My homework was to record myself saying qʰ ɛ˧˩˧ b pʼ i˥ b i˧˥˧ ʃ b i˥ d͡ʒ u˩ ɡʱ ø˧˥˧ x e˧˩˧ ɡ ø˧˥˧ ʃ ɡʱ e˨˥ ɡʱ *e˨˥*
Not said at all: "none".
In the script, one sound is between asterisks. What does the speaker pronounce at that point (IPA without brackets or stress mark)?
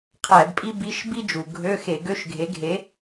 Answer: e˨˥